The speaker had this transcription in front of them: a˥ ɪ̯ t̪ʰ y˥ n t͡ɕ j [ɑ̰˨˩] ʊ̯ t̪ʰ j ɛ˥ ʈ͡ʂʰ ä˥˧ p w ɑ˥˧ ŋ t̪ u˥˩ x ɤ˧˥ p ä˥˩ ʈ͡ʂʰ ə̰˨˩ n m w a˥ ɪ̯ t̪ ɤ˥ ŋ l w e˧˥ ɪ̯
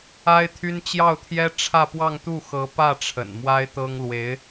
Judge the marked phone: incorrect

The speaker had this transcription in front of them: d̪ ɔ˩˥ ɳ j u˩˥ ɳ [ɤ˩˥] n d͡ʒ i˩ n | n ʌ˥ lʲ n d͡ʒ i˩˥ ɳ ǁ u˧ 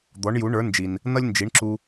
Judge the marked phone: incorrect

